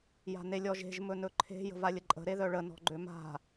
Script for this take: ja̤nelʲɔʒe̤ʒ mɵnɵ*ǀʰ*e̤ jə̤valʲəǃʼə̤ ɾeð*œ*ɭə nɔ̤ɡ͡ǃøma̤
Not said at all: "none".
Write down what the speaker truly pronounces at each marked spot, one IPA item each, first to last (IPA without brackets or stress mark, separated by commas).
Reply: ǃʰ, œ